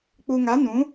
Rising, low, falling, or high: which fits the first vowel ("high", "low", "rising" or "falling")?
low